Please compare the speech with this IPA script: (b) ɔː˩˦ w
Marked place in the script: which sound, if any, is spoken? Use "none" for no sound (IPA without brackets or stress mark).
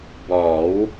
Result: b